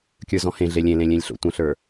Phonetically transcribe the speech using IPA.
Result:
kʲ ə˞ z ɔ̃ h ẽ ɮ e lʲ ẽ l ẽ lʲ ẽ lʲ ɬ o̰ tʷ ə̃ ɬ ə˞

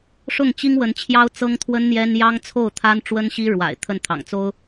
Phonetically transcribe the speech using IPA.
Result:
ʂ ʊ˥˩ ŋ t͡ɕ i˥ ŋ w ə˧˥ n t͡ɕʰ j ɑ˥ ʊ̯ t͡s ɤ˥ ŋ t̪ʰ w ə˥ n n̪ j ɛ˥ n j ɑ˥ ŋ t͡sʰ o˥˩ ʊ̯ t̪ʰ a˥ n ʈ͡ʂ w ə˥ n ɕ i˥ ɻ w a̰˨˩ ɪ̯ t̪ʰ ə˥˩ n t̪ʰ ɑ̰˨˩ ŋ t͡s o˥ ʊ̯

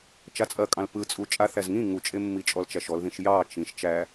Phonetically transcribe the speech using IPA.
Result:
t͡ʃ a t͡sʼ ɐ kʼ ɑ̃ l p ɯ t͡sʼ u t͡ʃʼ a θ æ z ŋ ĩ ŋ u t͡ʃʼ e mː i t͡ʃʼ ɔ l t͡ʃ æ ʃ ɔ l ð ĩ ʃ j ɑ t͡ʃ ĩ ʃ t͡ʃ æ

